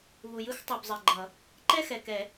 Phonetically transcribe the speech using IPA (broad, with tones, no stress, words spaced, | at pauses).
βu˨jɯ˥˧x tˤu˨bzˤɛ˨ɡ͡ǃʌ˨˩˦ | ǃɛ˥˧xɛ˨kɛ˨˩˦